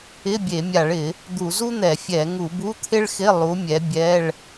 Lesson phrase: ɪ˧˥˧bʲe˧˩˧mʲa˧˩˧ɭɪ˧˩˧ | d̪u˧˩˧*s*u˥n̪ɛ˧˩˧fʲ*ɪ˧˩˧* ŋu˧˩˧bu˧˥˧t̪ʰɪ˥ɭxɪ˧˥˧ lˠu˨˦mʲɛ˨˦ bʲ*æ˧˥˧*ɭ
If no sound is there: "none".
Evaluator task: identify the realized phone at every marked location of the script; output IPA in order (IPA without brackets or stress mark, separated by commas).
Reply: z, ɛ˧˩˧, ɛ˧˥˧